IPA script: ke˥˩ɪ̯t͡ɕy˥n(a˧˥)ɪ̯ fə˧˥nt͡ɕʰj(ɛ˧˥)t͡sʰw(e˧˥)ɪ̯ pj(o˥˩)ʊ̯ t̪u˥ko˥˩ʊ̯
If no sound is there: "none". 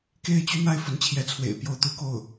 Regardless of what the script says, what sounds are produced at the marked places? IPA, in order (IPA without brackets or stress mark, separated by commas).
a˥, ɛ˧˥, ḛ˨˩, o˥˩